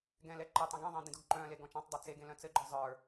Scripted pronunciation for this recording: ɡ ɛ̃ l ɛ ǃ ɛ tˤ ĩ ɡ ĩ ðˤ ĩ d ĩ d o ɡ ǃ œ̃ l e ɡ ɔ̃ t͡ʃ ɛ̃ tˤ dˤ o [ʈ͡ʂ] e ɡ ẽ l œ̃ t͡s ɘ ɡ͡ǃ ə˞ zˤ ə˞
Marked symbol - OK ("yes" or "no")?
no